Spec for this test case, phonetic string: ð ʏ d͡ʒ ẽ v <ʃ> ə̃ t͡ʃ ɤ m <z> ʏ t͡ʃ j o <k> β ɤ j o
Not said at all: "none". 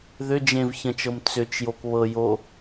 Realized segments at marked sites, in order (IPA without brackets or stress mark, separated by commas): ç, t͡s, k